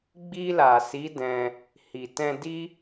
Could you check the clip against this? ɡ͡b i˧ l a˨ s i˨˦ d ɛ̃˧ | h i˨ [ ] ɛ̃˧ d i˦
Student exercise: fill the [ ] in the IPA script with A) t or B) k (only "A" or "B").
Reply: A